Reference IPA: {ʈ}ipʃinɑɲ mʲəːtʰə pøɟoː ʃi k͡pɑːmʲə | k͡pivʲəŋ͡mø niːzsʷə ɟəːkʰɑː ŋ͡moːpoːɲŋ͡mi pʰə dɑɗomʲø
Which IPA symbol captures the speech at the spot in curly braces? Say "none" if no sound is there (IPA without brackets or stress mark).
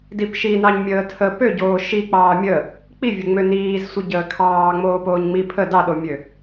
d